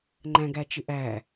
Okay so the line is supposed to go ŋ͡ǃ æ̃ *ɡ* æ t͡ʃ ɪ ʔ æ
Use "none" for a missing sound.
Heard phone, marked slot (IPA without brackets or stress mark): ɡ